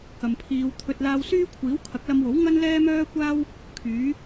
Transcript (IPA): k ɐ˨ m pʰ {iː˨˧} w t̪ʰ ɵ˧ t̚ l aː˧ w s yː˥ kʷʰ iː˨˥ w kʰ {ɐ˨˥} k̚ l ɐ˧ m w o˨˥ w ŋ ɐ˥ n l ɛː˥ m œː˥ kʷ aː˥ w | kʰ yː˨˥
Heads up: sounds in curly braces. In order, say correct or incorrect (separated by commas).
correct, correct